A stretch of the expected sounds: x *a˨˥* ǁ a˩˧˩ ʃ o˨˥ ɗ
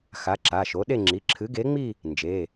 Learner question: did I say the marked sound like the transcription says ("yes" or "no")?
yes